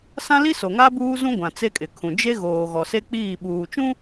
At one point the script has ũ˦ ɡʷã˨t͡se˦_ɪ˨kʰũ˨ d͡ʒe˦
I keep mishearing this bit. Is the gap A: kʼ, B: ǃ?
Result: A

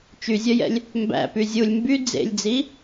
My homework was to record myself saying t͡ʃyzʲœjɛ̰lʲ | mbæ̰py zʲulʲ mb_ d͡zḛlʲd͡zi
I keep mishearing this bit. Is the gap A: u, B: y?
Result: B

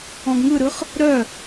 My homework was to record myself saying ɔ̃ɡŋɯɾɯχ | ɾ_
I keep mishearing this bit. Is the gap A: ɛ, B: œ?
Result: B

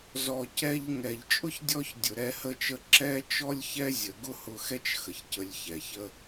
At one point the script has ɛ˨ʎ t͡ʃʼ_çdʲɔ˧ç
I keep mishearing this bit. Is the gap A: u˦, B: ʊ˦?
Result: B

